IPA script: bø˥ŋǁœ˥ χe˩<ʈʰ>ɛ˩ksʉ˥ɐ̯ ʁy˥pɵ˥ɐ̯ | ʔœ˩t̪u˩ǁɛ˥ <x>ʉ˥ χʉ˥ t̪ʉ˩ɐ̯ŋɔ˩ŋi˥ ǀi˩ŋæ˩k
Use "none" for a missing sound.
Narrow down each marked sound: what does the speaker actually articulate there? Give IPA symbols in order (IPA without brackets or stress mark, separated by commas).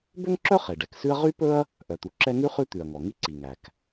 ɖ, ŋ